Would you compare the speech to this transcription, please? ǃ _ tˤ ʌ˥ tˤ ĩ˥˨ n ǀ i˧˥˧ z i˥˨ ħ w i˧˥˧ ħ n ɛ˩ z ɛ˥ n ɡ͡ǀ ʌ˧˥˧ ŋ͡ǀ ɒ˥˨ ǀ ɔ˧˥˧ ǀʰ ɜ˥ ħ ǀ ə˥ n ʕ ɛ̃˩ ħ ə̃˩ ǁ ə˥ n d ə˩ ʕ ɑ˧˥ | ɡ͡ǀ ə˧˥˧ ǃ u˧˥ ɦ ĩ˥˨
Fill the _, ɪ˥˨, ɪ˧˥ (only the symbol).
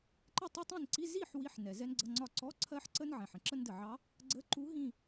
ɪ˥˨